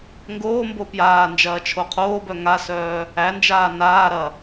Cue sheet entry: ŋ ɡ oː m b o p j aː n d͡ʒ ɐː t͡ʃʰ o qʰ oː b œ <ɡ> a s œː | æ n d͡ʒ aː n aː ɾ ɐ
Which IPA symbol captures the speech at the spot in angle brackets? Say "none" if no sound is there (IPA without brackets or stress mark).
ŋ